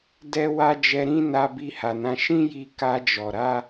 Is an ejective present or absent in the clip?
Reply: absent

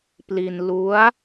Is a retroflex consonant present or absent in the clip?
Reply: absent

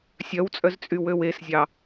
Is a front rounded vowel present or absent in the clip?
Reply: present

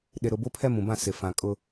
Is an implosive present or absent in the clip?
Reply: present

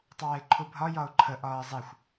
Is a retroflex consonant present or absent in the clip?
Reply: absent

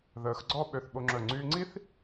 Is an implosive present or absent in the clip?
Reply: present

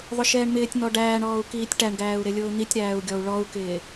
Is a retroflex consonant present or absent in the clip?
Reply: present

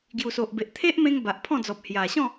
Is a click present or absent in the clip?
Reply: absent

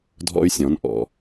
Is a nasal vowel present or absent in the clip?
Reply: present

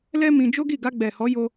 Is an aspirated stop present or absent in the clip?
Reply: absent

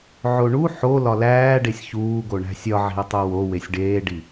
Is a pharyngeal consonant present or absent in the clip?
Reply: present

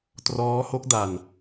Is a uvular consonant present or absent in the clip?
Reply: absent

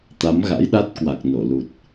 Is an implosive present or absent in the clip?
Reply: present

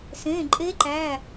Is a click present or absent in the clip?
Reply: present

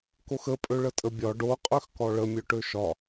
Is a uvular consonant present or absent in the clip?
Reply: present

